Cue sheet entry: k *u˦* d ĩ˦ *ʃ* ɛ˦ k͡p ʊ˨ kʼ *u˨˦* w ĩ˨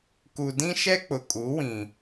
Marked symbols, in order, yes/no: no, yes, yes

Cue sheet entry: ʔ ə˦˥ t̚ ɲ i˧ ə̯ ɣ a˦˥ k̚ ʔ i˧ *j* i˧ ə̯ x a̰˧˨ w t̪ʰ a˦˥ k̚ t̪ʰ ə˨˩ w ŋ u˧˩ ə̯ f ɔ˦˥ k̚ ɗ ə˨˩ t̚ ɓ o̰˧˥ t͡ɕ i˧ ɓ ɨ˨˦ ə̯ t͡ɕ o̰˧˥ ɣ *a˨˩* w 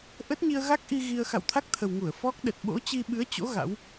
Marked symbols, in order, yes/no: no, no

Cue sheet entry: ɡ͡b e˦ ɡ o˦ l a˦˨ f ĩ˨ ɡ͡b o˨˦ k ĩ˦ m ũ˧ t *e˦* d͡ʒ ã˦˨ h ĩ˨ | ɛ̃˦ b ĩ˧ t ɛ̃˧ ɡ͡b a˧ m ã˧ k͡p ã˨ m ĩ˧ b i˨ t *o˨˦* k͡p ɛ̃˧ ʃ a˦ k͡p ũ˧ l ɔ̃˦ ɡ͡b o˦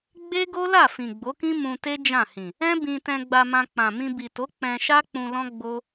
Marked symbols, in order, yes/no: yes, yes

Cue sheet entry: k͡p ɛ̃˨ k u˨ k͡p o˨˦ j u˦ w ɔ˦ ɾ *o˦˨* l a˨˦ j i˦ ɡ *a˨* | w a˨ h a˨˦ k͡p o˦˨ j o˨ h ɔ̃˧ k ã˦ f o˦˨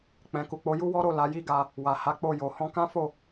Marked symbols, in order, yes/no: yes, no

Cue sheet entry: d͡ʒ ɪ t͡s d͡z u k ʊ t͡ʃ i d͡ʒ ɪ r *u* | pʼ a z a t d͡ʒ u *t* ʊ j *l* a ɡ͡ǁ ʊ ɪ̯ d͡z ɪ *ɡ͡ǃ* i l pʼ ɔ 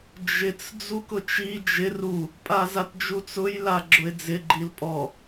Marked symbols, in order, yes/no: yes, no, yes, yes

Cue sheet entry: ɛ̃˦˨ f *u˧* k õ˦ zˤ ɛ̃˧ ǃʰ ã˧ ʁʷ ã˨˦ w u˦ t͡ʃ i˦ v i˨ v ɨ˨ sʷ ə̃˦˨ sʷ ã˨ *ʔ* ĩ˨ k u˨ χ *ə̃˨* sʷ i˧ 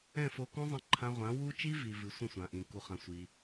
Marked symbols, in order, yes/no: no, yes, no

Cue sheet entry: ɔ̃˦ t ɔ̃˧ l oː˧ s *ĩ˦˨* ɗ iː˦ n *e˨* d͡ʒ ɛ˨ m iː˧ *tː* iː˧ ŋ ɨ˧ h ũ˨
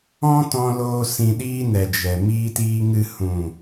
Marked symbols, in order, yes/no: no, no, no

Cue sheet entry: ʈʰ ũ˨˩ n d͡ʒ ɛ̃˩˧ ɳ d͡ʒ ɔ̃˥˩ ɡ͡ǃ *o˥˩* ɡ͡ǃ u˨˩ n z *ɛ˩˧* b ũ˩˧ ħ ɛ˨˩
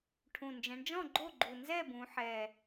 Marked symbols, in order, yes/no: yes, no

